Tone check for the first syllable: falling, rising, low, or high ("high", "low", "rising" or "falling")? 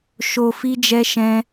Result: low